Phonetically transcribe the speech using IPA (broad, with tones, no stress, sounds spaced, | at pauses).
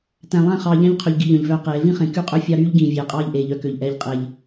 t æ̃˨ lˠ æ̃˦˨ χ ɑː˨ ʎ æ̃˦ ʎ qʰ ø˨ ʎ ɡ i˨ ʎ œ̃˨ ʎ v œː˦ q eː˨˦ v ĩ˦ χ ẽ˨ k y˦˨ qʼ ø˦ fʲ ɑ˦ ɾ yː˦ ʎ ɡ ĩː˨ vʲ eː˨ qʼ ɑː˦ ʎ ʔ eː˨ ʎ œ˦ k ø˨ ʎ ʔ ɛː˨ ʎ qʼ eː˨ ʎ